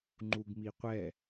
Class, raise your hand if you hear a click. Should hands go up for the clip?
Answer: yes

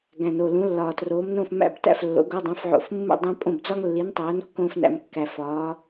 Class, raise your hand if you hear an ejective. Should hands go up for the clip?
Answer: yes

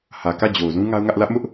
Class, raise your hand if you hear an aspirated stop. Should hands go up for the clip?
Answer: no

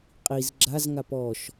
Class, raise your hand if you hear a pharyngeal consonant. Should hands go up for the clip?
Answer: no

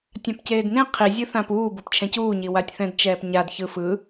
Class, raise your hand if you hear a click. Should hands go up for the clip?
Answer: no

